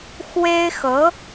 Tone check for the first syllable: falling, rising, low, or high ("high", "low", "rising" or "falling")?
high